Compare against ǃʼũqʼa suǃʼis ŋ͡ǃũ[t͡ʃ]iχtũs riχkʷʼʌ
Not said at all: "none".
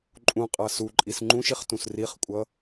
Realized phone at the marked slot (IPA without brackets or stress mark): ʃ